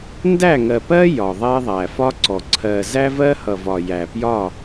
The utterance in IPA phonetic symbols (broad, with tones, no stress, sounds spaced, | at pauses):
n d æ˦˨ ŋ ɜ˨ p ɜ˦ j ɒ˨ ðˤ ɛ˦ ðˤ æ˨ f ɒ˦ ǀ ɔ˨ ǀʰ ɜ˨ z æ˦ v ɜ˦ h ʌ˨ v ɒ˨ j æ˨ p j ɒ˦˨